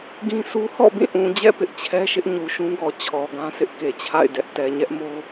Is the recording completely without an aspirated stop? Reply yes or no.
no